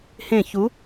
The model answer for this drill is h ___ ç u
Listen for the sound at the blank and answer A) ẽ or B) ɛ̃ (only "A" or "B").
A